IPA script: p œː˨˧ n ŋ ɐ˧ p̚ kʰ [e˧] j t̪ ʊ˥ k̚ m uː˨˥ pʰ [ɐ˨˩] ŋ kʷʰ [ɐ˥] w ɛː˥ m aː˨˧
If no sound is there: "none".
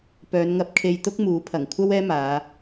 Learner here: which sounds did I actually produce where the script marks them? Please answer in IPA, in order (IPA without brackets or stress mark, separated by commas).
e˧, ɐ˨˩, ɐ˥